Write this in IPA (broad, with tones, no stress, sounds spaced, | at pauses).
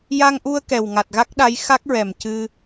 j a˧ ŋ ʔ u˧ ə̯ k ɛ˨˩ w ŋ a˨˩ t̚ ɣ a˦˥ k̚ ɗ a˧˥ j x a˦˥ k̚ ɹ ɛ˨˩ m c ɨ˧